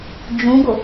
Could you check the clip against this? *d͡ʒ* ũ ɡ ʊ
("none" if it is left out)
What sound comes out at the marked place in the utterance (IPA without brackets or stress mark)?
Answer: d͡ʒ